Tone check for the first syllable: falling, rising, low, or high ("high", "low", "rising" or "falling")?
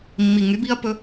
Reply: low